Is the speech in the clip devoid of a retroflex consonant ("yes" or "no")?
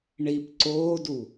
no